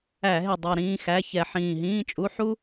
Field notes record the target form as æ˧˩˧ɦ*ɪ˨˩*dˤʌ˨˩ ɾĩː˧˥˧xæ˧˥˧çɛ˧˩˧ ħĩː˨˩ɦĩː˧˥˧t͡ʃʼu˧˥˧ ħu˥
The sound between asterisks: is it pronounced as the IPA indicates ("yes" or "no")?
yes